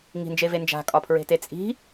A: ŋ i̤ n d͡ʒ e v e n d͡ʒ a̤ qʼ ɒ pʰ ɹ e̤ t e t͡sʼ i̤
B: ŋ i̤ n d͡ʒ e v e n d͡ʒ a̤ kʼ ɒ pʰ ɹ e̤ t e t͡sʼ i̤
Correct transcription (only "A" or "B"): B